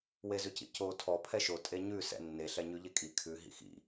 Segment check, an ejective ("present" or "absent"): present